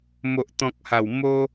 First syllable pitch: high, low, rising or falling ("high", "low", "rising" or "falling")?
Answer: low